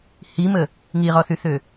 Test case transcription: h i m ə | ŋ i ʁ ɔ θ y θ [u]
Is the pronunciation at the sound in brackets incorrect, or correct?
incorrect: ø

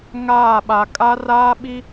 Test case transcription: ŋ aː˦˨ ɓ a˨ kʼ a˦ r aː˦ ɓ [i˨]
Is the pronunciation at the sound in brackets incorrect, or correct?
incorrect: i˦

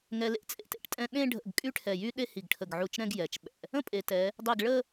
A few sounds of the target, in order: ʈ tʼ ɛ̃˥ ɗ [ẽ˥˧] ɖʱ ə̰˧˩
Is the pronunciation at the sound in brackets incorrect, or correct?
correct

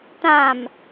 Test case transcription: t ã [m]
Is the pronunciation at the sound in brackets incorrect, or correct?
correct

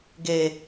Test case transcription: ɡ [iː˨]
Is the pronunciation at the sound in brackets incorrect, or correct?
incorrect: eː˨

